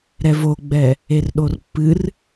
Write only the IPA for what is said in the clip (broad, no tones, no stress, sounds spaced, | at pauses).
ɾ ɛ v o ɡ͡b ɛ | e r ɗ o r pː ɨ r